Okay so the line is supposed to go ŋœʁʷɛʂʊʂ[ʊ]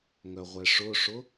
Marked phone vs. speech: correct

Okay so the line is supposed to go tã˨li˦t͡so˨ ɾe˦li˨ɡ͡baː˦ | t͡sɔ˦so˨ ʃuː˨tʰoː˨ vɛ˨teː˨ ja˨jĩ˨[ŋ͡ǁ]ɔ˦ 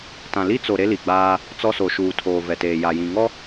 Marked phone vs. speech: incorrect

